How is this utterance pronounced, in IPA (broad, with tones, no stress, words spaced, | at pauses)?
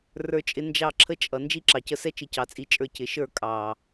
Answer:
rə˞˧t͡ʃʼɪ˧ nd͡ʒɑ˦˨ǁʰə˦t͡ʃʼʌ˨ nd͡ʒi˦ǁɑ˨cə˧sɛ˦ t͡ʃɪ˧cɑ˨t͡sʼi˧t͡ʃʼə˞˧ cɪ˨ʃə˞˦˨ kʼɑ˨